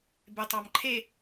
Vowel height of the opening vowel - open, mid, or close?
mid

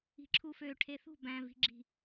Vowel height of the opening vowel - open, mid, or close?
close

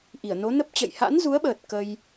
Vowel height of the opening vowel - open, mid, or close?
close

